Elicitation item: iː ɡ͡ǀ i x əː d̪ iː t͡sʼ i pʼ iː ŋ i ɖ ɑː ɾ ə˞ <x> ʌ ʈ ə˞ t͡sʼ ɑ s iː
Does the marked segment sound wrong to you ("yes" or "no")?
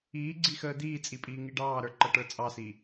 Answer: yes